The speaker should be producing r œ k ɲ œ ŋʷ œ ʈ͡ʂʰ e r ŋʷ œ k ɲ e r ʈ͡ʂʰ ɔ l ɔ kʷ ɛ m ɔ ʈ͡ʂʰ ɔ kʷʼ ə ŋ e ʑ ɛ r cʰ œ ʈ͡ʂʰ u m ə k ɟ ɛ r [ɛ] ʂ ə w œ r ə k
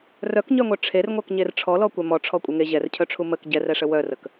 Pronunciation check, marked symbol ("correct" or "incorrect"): correct